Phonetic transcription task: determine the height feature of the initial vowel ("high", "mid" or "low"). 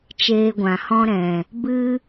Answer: mid